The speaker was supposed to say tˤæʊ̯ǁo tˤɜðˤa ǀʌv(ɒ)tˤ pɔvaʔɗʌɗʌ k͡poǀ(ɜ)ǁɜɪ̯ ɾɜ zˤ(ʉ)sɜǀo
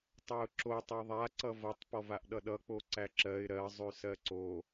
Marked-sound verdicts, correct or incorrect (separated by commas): incorrect, incorrect, correct